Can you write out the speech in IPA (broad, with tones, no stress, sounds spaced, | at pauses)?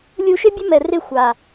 lʲ u˧ ʃ ɪ˦ bʲ ʊ˦ m ɛ˨ r ɪ˦˨ xʷ a˨